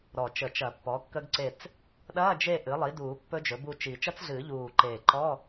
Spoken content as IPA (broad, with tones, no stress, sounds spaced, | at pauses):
ɾ ɔ˨˩ t͡ʃ ə˨˩˦ t͡ʃ ɐ˨˩˦ pː ɔ˩˥ kː ə˦˥ ɡ ǀ e˦˨ t͡s | ɗ ɐː˧˥˧ d͡ʒ e˦˨ ʔ ɨ˩˥ lˠ i˩˥ d uː˨˩˦ pː ɵ˦˥ d͡ʒ ɵ˩˥ b u˦˨ t͡ʃ i˨˩˦ t͡ʃ ɐ˦˥ t͡s ɮ ɨː˨˩˦ ʎ uː˨˩ ǃ eː˨˩ ǃ ɔ˧˥˧